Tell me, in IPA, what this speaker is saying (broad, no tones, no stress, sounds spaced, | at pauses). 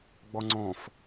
ɡ͡b ɔ ŋ͡ǀ ɔ̃ f